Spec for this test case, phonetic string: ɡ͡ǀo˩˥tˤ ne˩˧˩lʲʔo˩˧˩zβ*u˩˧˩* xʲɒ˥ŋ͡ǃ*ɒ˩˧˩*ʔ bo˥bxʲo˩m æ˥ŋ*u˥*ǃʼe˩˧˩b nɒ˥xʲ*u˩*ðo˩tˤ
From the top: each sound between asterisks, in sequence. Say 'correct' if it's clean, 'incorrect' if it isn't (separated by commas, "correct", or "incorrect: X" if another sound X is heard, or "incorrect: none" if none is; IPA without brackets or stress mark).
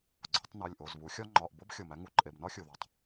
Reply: incorrect: u˩˥, correct, incorrect: u˩˧˩, correct